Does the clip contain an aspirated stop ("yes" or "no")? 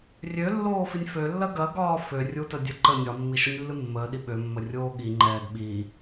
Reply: no